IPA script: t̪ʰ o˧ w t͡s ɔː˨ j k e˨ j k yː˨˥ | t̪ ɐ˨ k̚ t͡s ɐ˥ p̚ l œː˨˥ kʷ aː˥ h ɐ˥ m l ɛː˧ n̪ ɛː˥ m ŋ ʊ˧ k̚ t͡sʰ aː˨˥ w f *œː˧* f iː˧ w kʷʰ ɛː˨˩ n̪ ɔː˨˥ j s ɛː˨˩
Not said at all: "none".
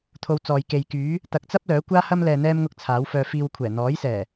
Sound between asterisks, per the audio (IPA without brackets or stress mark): œː˧